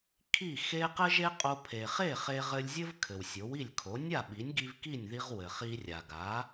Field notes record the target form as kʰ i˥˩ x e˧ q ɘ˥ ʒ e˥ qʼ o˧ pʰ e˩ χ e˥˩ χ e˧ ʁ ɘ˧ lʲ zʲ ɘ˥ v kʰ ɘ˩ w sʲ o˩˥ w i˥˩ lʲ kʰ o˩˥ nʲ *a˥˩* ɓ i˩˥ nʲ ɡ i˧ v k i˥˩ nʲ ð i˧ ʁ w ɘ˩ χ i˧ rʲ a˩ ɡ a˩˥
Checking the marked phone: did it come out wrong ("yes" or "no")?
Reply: no